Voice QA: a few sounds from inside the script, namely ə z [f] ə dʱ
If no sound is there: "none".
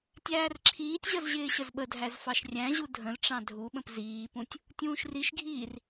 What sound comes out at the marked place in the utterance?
ɓ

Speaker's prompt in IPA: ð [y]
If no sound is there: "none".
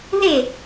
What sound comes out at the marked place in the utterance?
e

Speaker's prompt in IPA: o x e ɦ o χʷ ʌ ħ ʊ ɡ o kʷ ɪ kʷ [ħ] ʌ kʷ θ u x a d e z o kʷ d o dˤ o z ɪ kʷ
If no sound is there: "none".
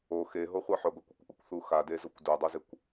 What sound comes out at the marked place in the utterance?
ʔ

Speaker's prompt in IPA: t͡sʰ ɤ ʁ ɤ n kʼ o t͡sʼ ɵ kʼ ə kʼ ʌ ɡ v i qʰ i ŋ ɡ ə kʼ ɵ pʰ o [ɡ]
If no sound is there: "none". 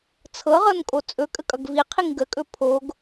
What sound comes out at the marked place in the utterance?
ɡ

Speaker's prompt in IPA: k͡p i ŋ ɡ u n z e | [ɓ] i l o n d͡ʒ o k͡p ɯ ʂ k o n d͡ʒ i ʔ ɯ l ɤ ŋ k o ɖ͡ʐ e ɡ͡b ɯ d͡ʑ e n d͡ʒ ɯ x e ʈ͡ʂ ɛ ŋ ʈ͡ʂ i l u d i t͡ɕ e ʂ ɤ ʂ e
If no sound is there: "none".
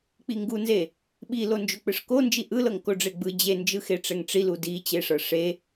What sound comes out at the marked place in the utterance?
ɓ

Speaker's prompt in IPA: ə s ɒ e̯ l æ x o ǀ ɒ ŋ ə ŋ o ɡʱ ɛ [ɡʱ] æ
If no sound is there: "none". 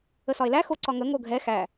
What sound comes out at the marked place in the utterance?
x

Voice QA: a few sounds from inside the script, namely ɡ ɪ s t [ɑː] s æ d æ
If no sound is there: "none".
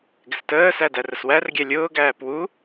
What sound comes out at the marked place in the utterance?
əː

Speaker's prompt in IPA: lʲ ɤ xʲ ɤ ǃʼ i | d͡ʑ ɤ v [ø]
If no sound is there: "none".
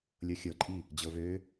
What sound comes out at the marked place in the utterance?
ø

